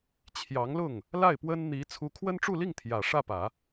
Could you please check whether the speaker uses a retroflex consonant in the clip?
yes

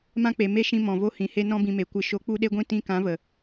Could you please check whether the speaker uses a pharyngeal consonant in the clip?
no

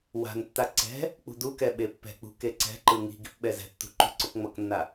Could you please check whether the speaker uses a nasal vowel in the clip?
no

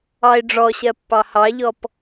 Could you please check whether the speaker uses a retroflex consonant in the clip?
yes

